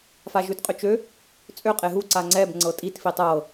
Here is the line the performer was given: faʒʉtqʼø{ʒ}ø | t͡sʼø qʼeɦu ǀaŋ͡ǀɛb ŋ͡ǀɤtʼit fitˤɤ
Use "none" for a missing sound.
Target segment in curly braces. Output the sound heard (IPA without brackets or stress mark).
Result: t͡ʃ